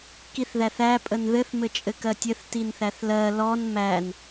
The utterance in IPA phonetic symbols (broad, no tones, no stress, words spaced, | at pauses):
kiθðæθæ pʼənðɘθ mɘt͡ʃʼɘkɜtʲɘθ tinθæθlɜ lɔn mæn